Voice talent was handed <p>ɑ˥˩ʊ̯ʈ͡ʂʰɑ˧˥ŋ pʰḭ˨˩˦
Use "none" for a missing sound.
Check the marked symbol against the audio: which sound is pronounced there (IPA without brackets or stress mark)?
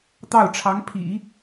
t̪